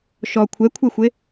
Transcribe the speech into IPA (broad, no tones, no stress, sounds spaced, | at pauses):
ʃ ɔ kʷʰ ɛ kʷʰ ɛ xʷ e